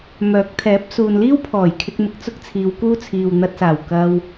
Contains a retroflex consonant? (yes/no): no